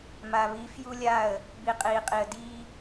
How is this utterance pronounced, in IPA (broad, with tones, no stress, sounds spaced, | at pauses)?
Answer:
m a˨ β i˨˦ f j u˦ lʲ a˦˨ ə̯ | b i˨ qʼ iː˨ qʼ i˨ ə̯ d iː˦